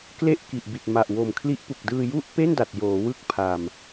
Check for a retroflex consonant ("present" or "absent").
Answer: absent